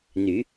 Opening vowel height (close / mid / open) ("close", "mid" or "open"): close